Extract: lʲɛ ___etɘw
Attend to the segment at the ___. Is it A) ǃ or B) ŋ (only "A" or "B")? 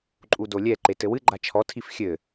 A